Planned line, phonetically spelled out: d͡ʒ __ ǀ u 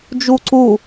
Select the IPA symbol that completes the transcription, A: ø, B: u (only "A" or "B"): B